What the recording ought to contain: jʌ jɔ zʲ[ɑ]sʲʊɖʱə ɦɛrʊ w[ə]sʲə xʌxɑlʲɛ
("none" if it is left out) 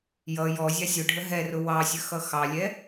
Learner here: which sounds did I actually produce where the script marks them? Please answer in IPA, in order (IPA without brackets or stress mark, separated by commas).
ɑ, ɑ